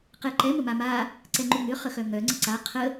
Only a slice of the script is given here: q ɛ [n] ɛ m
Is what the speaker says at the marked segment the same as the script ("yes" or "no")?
no